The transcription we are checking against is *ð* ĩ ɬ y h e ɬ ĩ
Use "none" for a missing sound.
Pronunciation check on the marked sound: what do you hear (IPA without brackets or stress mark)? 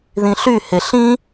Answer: ð